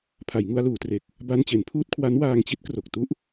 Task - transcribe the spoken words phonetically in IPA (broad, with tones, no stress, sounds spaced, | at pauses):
pʰ a˩˦ j ŋ u˧ a̯ l uː˩˦ t r e˨˩ k̚ | b a˧ n t͡ɕ e˩˦ n pʰ uː˥˩ t̚ kʰ w a˦˥ n w aː˧ ŋ t͡ɕ i˦˥ t̚ k r o˨˩ k̚ t u˥˩ ʔ